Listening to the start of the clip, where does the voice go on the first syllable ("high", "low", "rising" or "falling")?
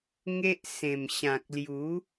high